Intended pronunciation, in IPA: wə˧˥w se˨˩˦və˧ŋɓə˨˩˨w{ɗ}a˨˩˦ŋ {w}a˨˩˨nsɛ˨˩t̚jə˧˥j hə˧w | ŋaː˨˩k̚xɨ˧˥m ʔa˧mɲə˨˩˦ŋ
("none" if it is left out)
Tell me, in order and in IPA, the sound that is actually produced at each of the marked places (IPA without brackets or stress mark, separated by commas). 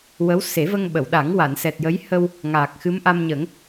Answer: ɗ, w